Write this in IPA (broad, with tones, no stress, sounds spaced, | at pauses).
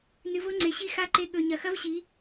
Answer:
n ɨ˨ v o˦ ŋ͡ǀ e˨ ɕ i˦ x a˦ ǃ e˧ ɠ ɵ˨ ɲ ɐ˨ x ɐ˦ v ɕ i˨˦